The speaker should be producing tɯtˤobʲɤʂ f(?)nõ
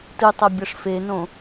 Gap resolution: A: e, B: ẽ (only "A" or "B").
A